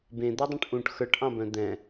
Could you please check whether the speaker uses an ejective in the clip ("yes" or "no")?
no